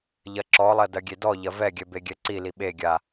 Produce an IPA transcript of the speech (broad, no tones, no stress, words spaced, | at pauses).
ʎɐǁɔlˠɐ dɐɡʲedɔʎɐ vɛɡʲɛ beɡʲɛǀili ɓeɡʲa